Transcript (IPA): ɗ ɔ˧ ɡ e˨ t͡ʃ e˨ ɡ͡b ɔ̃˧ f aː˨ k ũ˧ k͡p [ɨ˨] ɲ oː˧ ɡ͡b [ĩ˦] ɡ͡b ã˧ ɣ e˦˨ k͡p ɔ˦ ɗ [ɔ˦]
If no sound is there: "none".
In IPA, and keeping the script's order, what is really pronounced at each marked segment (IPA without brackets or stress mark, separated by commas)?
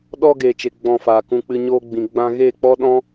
ɨ˧, ĩ˨, ɔ̃˦